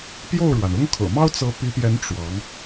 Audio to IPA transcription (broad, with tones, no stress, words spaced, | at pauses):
pjo˥˩ʊ̯ɻwa˩nʊ˥ŋkʰɤ̰˨˩ mɑ˥ʊ̯t͡sɤ˧˥pi˧˥pjɛ˧˥n ʈ͡ʂwɑ˧˥ŋ